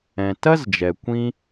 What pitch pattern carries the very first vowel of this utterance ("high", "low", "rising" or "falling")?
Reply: low